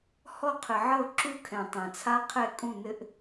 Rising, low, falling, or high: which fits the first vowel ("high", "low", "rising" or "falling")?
falling